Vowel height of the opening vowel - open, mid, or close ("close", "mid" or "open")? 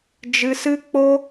close